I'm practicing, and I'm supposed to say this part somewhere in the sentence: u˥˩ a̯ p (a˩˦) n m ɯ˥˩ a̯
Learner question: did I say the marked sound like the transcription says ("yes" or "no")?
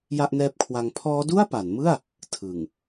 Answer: yes